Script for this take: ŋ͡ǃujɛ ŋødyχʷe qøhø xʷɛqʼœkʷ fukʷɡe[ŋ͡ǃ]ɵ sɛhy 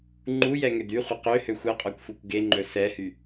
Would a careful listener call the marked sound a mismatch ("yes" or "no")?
no